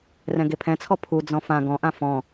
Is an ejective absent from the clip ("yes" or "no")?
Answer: yes